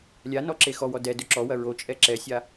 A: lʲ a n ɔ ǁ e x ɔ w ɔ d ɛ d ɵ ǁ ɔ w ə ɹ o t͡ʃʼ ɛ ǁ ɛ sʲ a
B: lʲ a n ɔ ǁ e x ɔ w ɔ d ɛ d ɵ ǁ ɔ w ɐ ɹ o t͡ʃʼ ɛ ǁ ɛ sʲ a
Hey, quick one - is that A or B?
B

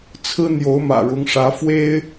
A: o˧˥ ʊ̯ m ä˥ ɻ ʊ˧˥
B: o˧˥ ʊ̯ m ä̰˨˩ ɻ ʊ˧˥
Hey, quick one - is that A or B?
B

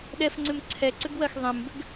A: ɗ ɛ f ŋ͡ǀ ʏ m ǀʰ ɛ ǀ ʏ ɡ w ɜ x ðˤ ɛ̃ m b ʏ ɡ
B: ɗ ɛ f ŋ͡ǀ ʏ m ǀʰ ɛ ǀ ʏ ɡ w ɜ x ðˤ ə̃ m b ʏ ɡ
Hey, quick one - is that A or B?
A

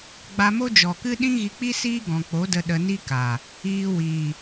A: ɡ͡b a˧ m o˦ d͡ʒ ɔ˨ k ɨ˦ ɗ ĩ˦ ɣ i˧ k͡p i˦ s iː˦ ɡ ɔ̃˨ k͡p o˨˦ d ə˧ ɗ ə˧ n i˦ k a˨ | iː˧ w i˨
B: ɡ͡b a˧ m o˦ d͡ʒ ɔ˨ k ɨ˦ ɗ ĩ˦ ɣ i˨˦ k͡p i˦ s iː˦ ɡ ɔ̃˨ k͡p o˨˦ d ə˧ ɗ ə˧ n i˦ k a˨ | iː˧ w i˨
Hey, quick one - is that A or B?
A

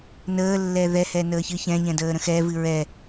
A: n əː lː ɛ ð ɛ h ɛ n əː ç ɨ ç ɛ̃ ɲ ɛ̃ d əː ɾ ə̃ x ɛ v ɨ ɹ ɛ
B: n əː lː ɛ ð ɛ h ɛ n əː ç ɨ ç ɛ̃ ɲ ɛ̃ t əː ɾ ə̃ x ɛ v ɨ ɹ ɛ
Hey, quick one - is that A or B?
A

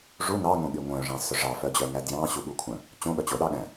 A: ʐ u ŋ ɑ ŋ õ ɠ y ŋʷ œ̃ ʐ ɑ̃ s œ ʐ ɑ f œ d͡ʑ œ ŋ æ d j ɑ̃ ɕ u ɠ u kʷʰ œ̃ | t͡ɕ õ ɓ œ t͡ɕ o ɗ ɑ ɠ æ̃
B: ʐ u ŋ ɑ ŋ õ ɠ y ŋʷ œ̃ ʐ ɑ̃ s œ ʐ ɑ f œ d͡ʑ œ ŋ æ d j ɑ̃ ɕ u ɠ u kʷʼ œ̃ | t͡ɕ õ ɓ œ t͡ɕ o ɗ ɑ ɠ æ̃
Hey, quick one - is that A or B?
A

